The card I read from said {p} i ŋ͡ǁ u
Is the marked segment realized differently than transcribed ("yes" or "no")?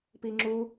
no